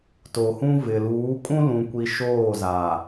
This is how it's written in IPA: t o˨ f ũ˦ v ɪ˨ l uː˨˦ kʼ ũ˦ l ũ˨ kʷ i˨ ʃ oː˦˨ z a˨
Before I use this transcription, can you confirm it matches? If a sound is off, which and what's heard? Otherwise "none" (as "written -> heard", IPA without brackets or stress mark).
f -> h